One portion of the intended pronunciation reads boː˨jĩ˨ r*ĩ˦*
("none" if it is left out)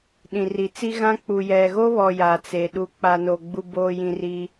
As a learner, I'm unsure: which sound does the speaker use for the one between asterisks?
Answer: i˦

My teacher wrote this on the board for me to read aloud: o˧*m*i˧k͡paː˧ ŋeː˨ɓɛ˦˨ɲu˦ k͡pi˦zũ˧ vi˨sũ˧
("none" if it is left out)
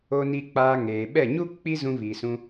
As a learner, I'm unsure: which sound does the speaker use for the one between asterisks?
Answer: n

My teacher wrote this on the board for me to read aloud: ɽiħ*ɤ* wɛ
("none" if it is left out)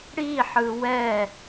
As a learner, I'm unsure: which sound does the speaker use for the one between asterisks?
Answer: ɯ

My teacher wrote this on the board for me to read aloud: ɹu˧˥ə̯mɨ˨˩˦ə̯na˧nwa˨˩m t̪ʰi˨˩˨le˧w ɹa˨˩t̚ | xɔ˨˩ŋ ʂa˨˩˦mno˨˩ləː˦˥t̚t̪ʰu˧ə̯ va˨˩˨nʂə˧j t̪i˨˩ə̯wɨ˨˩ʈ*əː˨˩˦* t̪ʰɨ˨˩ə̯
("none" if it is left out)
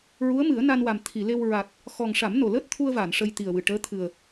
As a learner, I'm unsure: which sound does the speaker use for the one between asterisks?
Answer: əː˧˥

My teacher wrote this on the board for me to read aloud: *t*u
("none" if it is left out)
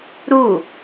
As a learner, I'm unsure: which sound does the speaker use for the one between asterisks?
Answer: ɾ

